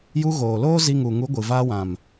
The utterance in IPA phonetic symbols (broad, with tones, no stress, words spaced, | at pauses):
ju˧ɣoː˨loː˦ zi˧ŋu˨ŋu˨˦ ɡʷɨ˨vaː˧wã˨m